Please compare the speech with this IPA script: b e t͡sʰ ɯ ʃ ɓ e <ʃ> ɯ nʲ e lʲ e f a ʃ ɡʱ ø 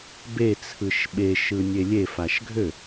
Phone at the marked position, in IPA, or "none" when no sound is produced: ʃ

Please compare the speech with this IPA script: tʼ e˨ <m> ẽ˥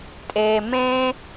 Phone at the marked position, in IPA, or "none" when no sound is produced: m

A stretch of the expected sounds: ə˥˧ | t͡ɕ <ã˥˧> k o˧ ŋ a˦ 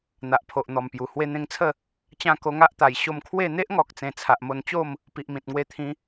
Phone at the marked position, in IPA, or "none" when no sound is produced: ã˧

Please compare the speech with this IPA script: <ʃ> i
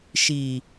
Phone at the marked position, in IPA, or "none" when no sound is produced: ʃ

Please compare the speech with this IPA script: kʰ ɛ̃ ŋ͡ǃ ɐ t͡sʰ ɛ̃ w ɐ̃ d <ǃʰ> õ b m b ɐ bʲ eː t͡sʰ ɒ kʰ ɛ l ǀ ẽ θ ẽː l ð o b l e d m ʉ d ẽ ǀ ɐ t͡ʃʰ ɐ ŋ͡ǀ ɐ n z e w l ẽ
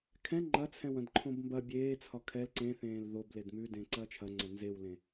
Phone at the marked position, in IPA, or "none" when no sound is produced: ǃʰ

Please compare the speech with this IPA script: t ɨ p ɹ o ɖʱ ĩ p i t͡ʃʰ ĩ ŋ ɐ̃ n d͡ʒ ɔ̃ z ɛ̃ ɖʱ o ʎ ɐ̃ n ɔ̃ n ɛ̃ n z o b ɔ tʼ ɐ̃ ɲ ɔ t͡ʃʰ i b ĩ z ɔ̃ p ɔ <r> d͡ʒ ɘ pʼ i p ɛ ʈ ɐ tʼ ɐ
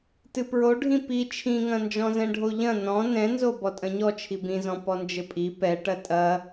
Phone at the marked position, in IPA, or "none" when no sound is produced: n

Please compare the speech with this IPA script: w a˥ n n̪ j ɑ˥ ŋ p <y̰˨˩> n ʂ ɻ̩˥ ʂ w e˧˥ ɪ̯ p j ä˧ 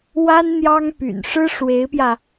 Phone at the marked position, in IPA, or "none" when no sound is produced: y̰˨˩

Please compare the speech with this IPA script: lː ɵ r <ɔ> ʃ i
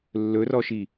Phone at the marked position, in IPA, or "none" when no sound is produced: ɔ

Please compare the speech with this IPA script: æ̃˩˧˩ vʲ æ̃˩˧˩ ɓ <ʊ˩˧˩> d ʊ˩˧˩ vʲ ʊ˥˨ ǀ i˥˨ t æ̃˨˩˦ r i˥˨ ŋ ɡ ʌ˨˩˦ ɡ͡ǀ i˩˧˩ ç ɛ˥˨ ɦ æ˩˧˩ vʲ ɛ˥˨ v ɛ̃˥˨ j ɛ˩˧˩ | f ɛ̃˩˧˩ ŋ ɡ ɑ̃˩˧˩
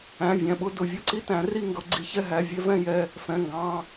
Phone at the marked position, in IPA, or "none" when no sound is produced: ʊ˥˨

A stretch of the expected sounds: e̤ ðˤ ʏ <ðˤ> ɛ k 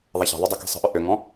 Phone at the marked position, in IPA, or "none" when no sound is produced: dˤ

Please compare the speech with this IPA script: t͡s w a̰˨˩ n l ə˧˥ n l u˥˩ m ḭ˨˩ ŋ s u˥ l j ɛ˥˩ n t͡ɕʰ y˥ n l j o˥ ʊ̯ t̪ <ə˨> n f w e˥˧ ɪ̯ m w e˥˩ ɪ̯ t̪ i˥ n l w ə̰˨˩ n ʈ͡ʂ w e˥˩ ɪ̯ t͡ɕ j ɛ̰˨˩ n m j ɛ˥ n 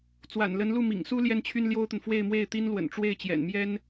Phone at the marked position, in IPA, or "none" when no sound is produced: ə˨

